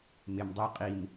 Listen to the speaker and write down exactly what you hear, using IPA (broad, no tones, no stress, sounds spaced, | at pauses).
m ɪ m dˤ u qʼ i m